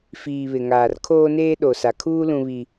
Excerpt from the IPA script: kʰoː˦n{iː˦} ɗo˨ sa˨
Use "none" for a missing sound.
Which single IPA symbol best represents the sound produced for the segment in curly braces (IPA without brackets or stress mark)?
eː˦